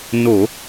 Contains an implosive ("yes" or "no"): no